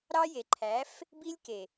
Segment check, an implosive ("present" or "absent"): absent